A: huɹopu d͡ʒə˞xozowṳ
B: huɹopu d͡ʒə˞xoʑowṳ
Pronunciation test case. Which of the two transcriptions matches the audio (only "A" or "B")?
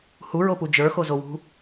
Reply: A